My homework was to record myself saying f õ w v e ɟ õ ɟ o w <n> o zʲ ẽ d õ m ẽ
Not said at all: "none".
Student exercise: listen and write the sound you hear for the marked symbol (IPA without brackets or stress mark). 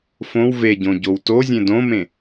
t